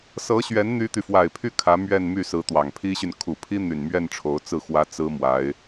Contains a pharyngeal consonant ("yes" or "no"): no